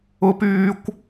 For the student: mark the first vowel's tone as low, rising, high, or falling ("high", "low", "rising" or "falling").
high